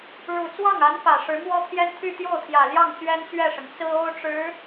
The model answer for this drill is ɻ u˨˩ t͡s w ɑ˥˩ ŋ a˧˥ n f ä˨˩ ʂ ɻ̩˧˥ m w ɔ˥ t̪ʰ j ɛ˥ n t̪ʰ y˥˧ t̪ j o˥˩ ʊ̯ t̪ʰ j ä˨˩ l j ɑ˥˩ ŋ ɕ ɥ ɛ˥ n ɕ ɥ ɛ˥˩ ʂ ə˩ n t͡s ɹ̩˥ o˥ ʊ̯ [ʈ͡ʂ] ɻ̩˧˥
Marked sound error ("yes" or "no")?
no